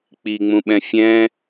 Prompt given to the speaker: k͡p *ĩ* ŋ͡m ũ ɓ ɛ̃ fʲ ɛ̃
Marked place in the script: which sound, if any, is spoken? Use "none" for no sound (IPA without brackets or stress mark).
i